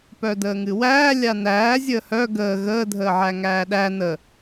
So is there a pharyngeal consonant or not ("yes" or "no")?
yes